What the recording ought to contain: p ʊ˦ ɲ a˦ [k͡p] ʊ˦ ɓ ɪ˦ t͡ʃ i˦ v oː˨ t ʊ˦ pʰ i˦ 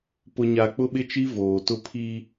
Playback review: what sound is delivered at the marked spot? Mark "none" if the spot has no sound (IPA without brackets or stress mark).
k͡p